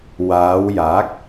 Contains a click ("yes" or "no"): no